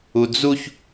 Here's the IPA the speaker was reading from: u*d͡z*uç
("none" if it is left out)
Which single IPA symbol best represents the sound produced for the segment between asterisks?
d͡z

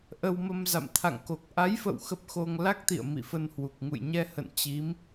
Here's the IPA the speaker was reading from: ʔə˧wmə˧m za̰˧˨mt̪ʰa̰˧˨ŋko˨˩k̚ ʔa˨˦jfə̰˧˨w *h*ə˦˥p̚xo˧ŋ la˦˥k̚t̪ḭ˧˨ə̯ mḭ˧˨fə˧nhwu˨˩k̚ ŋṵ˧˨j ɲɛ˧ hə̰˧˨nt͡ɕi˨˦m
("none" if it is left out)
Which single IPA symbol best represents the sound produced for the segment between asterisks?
x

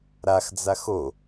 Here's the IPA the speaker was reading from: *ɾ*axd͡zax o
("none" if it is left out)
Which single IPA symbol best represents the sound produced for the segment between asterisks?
ɾ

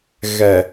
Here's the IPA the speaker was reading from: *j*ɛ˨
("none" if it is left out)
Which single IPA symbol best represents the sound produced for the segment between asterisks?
ɣ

